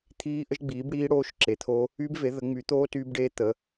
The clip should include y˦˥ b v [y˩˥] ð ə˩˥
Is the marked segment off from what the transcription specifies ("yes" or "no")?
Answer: yes